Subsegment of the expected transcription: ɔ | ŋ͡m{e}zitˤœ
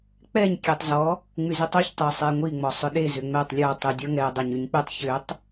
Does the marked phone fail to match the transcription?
yes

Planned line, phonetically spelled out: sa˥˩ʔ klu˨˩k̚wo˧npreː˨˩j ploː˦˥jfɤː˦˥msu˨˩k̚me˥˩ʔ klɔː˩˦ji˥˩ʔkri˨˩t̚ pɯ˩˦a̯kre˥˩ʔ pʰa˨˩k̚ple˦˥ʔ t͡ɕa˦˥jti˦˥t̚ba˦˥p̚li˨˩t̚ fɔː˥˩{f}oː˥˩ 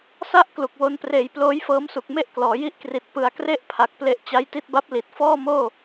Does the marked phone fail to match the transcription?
yes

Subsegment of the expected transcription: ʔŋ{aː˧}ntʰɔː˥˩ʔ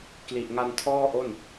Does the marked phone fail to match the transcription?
yes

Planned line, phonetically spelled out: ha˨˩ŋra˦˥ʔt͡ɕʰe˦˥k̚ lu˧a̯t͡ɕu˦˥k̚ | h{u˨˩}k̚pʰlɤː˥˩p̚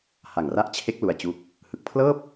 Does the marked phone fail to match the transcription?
yes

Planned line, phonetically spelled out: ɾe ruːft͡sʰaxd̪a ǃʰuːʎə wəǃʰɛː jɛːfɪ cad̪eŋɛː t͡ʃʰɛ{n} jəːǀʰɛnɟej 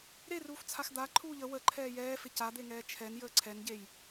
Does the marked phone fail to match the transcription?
no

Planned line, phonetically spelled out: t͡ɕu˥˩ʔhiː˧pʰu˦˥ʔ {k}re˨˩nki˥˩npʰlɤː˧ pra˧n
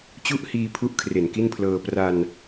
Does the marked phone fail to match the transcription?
yes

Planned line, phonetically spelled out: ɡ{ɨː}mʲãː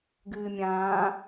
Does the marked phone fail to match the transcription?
no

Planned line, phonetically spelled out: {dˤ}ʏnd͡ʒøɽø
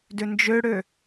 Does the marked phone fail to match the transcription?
yes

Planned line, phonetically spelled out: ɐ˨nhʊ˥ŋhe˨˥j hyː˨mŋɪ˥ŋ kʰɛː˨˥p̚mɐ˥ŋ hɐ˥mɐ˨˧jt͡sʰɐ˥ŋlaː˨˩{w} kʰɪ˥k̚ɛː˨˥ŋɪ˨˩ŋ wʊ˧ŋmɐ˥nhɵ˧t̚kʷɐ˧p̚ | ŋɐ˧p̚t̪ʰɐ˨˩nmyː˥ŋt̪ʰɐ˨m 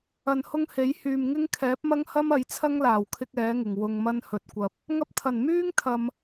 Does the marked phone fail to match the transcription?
no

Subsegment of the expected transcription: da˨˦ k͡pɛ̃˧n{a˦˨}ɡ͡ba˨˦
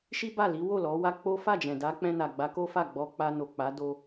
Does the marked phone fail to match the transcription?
yes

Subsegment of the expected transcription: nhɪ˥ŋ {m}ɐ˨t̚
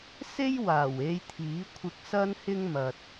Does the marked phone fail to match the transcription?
no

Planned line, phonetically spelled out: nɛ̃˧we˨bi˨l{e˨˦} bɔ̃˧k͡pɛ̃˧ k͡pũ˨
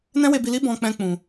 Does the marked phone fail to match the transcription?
yes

